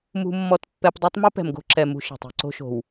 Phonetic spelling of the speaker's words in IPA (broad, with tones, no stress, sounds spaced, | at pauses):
m ṳ˦ mː ɔ˦ t pː ɛ˦ p dˤ a˦ tˤ m u˦ p ɛ̤˨ m ɡ o̤˦ ǁ ɛ˨ m ṳ˦ ʃ ɛ̤˨ tˤ i̤˦ ǀ o̤˦ ʃ o̤˨ w